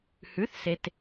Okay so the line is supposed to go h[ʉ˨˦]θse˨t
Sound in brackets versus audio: correct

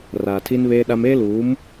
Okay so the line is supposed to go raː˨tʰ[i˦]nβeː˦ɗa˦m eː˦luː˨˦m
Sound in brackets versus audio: correct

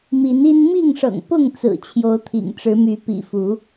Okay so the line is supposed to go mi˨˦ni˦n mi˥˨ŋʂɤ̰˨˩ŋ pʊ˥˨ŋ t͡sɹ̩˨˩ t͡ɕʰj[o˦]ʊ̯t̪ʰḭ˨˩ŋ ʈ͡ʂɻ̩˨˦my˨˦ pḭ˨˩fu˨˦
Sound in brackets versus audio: incorrect: o˨˦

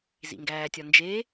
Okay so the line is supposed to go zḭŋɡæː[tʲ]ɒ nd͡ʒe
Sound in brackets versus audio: correct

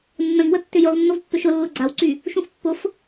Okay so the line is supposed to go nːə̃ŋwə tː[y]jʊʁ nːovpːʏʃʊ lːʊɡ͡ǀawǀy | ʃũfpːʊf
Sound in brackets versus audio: incorrect: ʏ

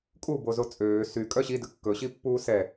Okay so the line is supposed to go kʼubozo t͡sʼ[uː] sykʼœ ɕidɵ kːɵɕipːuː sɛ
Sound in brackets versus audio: incorrect: øː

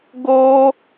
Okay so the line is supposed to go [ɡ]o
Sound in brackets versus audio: correct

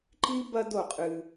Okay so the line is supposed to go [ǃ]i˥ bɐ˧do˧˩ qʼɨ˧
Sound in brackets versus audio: correct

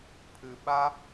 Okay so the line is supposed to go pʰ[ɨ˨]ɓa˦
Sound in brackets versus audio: correct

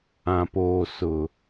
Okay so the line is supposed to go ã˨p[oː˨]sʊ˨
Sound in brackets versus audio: correct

